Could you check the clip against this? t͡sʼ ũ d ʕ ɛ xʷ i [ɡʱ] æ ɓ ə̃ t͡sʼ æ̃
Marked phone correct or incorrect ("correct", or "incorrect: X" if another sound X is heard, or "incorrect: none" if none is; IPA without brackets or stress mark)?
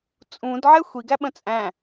incorrect: ɡ